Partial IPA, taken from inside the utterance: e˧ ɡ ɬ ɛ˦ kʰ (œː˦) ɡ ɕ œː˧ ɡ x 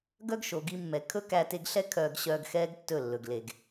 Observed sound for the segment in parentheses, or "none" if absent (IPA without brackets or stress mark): œː˧